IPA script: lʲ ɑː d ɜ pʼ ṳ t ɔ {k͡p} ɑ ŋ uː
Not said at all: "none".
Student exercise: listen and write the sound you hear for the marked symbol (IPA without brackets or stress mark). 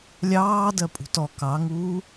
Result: k